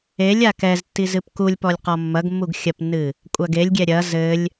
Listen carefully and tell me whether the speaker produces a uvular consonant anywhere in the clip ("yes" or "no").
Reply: yes